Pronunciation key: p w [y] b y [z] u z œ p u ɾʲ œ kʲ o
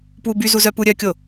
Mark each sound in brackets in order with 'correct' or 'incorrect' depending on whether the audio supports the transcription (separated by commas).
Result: incorrect, correct